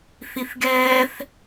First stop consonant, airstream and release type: plain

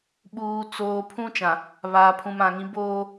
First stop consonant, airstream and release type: implosive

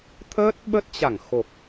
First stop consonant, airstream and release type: aspirated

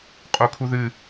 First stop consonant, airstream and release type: ejective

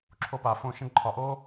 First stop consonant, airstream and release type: click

